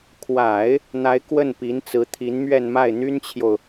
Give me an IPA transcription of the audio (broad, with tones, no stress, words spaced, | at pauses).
kʰwa˨˩˦ɪ̯ | n̪a˧˥ɪ̯ kwə˥˩npi˧˥nt͡sɹ̩˧˥ t̪ʰi˧˥nmɥɛ˥˧nma˥˩ɪ̯ n̪y˥nt͡ɕʰjo˨ʊ̯